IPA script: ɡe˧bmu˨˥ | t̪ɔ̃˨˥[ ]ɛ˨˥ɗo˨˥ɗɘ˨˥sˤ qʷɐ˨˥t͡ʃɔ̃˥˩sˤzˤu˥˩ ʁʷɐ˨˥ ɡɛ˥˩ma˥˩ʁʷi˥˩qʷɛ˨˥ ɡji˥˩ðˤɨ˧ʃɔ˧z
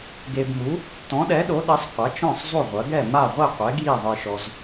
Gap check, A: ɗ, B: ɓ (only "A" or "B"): A